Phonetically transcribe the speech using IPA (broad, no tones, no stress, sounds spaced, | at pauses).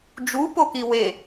d͡ʒ u p o k i w e